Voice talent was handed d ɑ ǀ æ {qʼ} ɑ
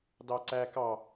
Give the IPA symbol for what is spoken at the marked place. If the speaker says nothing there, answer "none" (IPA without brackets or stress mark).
k